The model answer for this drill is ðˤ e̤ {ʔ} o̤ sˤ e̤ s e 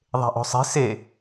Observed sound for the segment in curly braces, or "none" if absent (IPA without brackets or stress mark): ʔ